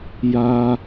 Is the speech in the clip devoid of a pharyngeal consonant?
yes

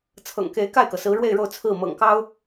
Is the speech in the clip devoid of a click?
yes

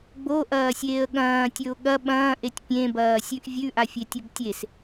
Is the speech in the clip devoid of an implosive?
no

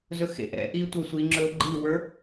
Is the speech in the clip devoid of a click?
no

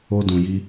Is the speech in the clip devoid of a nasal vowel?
no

